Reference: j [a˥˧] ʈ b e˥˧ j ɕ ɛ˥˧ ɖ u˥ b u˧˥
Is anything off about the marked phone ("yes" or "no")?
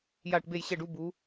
no